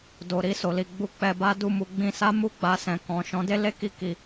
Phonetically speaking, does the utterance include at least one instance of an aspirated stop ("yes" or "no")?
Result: no